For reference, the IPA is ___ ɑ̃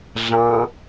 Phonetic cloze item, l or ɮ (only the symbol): ɮ